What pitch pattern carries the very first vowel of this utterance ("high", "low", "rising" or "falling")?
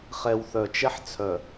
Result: low